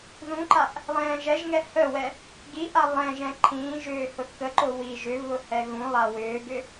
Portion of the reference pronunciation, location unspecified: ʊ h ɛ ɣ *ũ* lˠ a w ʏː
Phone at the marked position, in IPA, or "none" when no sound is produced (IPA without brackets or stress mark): ũ